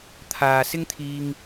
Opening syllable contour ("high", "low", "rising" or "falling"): low